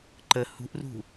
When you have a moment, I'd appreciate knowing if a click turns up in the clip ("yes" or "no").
yes